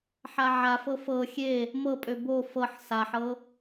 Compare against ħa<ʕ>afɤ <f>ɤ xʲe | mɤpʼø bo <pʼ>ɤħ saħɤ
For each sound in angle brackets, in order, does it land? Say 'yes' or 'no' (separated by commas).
yes, yes, no